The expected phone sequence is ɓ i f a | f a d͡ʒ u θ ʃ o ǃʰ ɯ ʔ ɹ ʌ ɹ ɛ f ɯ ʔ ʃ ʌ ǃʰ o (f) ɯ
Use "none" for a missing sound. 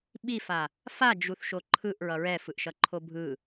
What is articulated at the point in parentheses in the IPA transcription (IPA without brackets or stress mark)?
bʱ